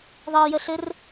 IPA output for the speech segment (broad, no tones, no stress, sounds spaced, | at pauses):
ðˤ ɜ j ə ɬ ɘ r